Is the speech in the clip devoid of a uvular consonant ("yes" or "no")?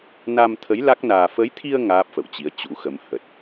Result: yes